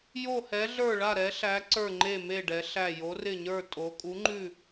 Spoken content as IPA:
jo˥˧hɛ˧˥ɮə˞˥˧ɭa˥˧ ɾɛ˧˥ɬæ˧˥ ǀə˞˥˧ŋ͡ǃe˥˧me˥˧ ɖɛ˧˥ɬæ˥˧ jo˧˥rɪ˥˧ɲə˞˥˧ tʼo˧˥ kʼu˧˥ŋ͡ǃʉ˥˧

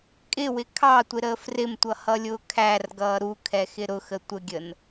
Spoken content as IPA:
kʼɪwɪ kʰɑtʷɪɾəːf rɪmtʷʌhʌlʲʊː kʰærɡʌː ɾukʰɛxɪ ɾʊxə tʷəɡʲən

